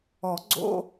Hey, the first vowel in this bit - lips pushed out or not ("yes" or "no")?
yes